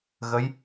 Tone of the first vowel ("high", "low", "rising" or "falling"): rising